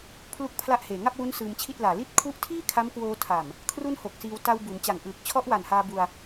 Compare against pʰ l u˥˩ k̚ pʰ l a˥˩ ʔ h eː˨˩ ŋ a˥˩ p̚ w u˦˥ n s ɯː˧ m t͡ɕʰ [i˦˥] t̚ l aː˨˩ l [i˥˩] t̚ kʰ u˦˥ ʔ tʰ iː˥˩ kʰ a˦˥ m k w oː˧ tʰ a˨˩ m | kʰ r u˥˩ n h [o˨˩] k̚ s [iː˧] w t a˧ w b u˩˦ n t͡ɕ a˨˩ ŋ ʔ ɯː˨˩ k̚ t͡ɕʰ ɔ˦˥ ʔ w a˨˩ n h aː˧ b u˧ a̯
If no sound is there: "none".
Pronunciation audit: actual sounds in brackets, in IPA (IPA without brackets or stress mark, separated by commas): i˥˩, i˥˩, o˨˩, iː˧